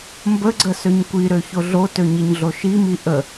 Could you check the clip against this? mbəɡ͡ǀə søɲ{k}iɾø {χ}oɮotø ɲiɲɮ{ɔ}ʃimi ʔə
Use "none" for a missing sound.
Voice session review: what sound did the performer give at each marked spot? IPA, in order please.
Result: kʷ, ç, o

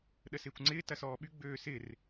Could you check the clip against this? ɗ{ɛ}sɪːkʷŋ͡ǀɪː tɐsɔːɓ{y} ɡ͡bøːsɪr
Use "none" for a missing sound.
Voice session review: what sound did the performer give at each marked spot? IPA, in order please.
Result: ə, y

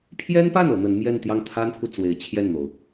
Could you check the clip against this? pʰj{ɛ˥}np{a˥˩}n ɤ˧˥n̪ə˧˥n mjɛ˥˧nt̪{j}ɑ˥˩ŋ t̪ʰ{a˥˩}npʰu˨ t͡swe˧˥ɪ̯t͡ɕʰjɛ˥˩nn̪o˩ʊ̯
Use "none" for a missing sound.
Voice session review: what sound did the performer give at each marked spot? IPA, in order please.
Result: ɛ˥, a˥˩, j, a˥

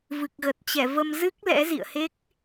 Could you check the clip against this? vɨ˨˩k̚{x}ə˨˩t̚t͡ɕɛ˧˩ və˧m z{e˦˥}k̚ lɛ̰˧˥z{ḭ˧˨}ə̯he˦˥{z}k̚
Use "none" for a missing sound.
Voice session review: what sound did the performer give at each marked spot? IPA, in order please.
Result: ɣ, ɨ˦˥, ḭ˧˨, none

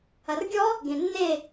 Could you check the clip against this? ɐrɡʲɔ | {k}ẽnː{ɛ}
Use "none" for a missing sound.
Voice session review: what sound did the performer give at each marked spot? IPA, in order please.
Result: ɡ, e

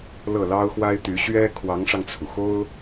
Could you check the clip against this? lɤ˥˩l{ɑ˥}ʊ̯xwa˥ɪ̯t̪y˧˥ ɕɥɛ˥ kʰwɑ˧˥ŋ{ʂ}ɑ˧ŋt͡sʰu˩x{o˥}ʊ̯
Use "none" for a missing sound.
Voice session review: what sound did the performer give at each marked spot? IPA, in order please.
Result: ɑ˥, ʂ, o˥

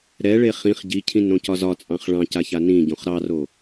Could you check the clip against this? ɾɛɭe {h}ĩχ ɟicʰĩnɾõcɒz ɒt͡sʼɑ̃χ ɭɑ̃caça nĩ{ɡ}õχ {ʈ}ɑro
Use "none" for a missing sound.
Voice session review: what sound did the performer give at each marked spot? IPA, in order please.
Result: χ, ɟ, ɾ

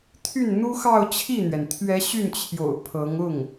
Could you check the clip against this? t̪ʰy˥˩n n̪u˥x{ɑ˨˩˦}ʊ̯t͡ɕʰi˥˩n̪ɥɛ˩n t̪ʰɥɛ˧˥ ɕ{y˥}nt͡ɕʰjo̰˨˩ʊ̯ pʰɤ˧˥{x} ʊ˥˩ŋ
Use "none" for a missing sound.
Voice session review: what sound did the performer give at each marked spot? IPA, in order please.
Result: ɑ˥˧, y˥˩, ŋ

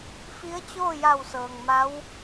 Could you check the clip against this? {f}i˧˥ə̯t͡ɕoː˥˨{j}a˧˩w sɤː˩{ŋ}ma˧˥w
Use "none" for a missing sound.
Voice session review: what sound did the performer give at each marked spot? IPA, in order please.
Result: f, j, ŋ

